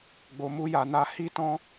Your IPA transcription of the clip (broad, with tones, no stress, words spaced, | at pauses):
ɡ͡bo˧mu˦ja˧na˦ hi˦tɔ̃˦